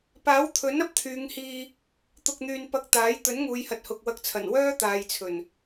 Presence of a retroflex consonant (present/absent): absent